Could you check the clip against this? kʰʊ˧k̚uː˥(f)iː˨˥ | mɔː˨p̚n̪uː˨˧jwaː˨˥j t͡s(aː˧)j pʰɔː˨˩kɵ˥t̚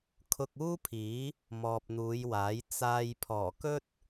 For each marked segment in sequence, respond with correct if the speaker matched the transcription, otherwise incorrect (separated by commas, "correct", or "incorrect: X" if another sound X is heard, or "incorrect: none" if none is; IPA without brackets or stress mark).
incorrect: pʰ, correct